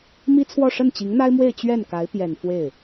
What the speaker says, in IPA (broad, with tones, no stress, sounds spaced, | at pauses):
m i˥ t͡sʰ w ɔ˥˧ ʂ ə˥˩ n t͡ɕ i˧˥ ŋ n̪ a˥ ɪ̯ m w e˥˧ ɪ̯ t͡ɕ ɥ ɛ˥˩ n k a˧˥ ɪ̯ p j ɛ˨˩ n f w e˥˩ ɪ̯